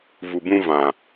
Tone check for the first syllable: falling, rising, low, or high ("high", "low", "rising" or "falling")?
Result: low